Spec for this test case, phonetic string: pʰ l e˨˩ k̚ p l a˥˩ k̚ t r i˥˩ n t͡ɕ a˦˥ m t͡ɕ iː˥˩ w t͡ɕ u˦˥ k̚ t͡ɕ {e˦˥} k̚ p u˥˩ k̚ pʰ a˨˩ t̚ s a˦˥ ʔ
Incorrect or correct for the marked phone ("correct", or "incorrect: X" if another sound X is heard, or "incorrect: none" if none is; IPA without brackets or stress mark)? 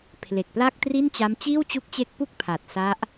correct